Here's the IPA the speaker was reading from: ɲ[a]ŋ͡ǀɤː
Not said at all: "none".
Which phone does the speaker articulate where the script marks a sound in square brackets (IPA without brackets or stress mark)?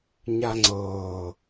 a